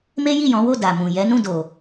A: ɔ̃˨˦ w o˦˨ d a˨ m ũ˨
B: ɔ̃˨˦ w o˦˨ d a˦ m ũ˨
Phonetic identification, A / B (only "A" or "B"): A